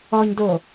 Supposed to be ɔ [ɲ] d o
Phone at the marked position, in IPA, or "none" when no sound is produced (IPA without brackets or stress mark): ɲ